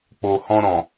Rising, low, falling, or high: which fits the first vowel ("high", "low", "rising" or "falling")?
low